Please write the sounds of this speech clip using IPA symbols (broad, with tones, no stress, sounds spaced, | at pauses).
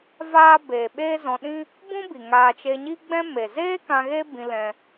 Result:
v aː˦ b eː˨ ɓ eː˦ z ɔ̃˧ ɗ ĩ˦ | b ũ˦ b i˨ ŋ aː˧ t͡ʃ e˧ ɲ i˦ ɡ͡b ɛ̃˦ m e˨ z eː˦ k ã˧ ɣ e˦ b ĩ˧ l ɛ̃˧